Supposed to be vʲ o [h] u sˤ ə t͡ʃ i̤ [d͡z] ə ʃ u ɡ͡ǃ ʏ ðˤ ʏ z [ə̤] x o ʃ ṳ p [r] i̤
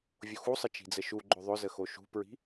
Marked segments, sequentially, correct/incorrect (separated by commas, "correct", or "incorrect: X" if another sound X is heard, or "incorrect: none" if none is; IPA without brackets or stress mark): incorrect: x, correct, incorrect: ə, incorrect: ɹ